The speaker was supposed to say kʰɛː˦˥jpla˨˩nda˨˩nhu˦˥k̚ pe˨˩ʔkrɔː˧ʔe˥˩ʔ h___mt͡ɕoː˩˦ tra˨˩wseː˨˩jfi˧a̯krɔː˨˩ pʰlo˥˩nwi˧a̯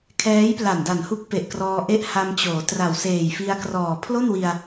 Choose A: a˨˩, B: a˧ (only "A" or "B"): B